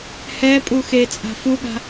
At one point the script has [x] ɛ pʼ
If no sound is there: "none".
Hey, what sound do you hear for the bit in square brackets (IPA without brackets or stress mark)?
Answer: h